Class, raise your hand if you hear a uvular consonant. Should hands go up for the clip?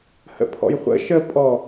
yes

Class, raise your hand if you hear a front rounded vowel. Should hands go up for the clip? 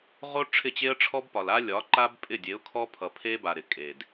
no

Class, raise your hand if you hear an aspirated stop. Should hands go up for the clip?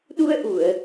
no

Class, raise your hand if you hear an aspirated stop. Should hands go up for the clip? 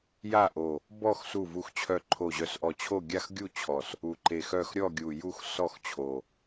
yes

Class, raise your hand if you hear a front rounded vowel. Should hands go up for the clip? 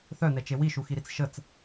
yes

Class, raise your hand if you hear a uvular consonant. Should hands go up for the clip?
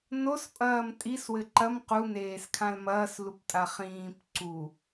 yes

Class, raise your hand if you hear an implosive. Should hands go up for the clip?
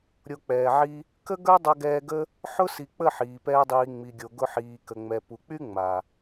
no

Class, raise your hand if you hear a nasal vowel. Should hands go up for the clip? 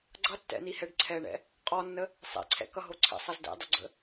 no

